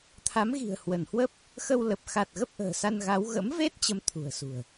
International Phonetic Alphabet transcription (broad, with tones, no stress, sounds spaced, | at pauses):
t̪ʰ a˨˦ m ɣ i̤˨˩ ə̯ h w ə˧˩ n h w ə˦˥ p̚ | x ə˧ w l ə˨˩ p̚ x a˨˩ t̚ ɣ ə˦˥ p̚ ʔ ə̤ː˨˩ s a˧ n ɣ a˨˦ w ɣ ə̰˧˥ m v e˦˥ t̚ t͡ɕ ə˧ m t̪ʰ ṳ˨˩ ə̯ s ṳ˨˩ ə̯